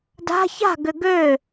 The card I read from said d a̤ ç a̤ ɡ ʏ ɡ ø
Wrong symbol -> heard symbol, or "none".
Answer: none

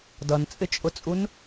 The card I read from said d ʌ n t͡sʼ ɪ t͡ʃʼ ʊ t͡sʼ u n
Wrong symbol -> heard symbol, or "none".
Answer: none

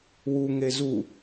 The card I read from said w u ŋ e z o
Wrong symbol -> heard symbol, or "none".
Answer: o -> u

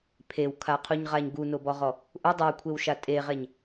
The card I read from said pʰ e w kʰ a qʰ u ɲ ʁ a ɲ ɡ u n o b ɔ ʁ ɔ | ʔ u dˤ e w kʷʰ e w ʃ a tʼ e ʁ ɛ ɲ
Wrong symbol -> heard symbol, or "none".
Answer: none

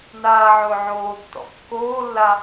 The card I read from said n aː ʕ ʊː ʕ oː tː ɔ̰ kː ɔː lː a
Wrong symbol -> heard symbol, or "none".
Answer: ɔː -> oː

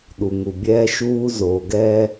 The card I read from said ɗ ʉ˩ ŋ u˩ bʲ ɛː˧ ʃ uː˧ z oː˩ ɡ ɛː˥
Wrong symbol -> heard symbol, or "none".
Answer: ʉ˩ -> u˩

